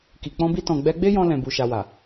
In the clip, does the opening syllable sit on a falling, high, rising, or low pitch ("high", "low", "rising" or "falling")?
low